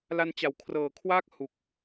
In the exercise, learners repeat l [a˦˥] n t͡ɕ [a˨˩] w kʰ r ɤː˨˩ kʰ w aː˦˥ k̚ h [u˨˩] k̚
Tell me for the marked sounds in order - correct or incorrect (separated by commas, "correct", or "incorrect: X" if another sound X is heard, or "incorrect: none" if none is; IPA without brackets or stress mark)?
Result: incorrect: a˧, correct, correct